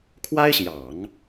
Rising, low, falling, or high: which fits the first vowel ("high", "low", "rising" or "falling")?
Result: high